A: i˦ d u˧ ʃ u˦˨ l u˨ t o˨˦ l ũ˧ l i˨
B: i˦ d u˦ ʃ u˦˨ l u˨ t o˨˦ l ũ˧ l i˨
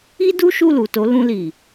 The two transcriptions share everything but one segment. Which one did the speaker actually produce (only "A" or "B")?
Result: B